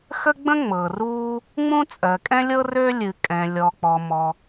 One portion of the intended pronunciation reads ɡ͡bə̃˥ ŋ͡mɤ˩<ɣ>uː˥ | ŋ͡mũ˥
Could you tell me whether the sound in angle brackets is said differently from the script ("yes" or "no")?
yes